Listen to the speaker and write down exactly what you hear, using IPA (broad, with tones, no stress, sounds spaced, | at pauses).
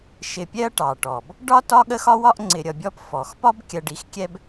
ʃ ɪ˧ pʲ ɛ˥ ɐ̯ ʈ ɑ˩ ʈ ɔ˩ b | ɖ ɒ˥ t ɒ˥ ɠ ə˥ x ɒ˥ w ɒ˥ ʔ ŋ͡ǀ ɪ˧ ɾʲ ʌ˧ bʲ ɔ˥ p f ɔ˩ x p ɒ˥ b kʲ ɜ˧ ɖ i˧ x kʲ ɛ˥ b